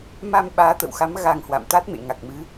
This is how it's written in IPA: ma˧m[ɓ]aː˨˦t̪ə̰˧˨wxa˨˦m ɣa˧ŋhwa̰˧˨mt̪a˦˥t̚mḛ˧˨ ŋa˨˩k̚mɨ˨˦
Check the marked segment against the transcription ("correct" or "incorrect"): correct